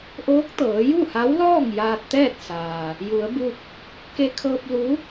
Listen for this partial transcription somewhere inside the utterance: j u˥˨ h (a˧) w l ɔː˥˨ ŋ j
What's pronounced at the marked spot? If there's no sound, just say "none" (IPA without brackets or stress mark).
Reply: a˧˥